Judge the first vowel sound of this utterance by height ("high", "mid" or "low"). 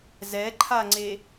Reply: mid